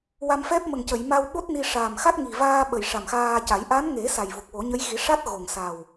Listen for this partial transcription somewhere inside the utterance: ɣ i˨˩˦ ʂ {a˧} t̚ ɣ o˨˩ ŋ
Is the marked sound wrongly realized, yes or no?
yes